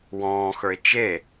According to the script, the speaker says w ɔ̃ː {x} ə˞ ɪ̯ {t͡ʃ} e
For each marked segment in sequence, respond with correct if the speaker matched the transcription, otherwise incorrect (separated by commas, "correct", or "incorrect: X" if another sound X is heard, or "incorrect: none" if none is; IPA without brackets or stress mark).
correct, correct